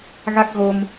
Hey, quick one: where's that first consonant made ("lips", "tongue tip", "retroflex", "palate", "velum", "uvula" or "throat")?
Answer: velum